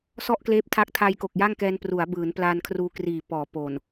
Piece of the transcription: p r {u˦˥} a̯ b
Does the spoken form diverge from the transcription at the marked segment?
yes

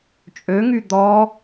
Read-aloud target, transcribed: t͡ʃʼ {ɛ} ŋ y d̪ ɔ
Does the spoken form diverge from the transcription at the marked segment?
yes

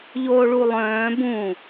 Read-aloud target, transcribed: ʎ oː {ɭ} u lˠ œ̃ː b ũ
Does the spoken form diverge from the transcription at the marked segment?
no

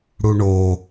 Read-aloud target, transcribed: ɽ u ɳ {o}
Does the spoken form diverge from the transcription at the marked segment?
no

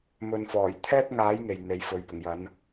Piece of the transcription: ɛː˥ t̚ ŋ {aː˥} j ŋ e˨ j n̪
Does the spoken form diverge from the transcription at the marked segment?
yes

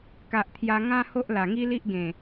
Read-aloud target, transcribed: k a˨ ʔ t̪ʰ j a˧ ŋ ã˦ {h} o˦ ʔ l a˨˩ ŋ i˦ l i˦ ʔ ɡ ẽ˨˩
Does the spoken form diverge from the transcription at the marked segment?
no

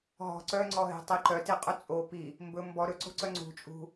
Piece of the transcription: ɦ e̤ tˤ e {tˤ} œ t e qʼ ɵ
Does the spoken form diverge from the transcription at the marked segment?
yes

